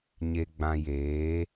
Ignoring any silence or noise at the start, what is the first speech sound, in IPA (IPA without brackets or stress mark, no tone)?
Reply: ɲ